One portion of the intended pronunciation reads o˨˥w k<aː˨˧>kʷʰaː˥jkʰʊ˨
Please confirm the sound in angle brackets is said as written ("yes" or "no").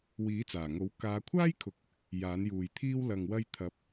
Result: yes